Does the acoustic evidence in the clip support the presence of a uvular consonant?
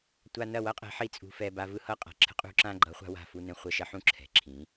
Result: yes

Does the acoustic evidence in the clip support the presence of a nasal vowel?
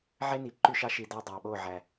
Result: no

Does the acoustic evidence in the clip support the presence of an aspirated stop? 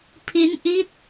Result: yes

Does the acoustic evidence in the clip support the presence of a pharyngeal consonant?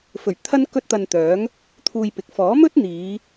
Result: no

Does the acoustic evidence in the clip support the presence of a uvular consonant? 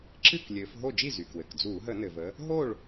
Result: no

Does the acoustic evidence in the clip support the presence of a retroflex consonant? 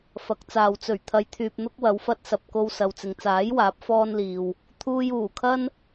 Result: no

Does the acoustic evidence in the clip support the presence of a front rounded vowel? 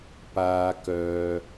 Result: yes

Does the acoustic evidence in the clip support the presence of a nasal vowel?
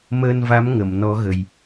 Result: no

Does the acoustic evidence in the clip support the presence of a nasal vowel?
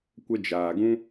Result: yes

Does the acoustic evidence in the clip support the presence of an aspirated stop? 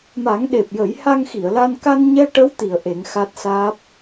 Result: no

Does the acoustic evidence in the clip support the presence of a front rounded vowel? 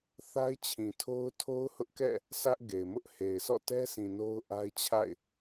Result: no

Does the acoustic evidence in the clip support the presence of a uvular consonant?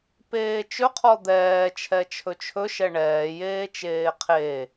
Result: yes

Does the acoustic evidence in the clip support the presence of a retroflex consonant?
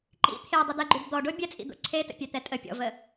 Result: yes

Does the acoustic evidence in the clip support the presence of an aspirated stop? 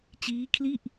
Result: yes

